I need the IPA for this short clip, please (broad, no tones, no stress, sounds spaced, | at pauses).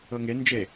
ɤ ŋ e n d͡ʒ e